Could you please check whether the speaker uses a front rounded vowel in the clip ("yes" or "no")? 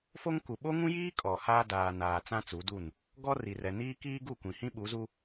no